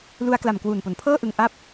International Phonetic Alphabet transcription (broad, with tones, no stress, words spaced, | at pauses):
lu˧a̯kla˨˩m kwuː˨˩npo˩˦npʰɤː˥˩ʔɯ˧ŋ ʔa˦˥p̚